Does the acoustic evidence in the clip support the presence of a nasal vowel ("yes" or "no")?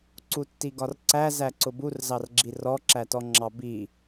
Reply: no